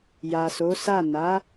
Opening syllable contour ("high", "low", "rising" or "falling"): low